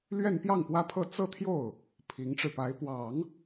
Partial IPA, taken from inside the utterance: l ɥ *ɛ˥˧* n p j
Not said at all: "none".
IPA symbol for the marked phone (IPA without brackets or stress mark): ɛ˥˧